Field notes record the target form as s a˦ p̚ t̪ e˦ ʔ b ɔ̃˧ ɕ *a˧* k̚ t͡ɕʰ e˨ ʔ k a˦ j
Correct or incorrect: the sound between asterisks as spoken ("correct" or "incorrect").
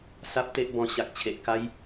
incorrect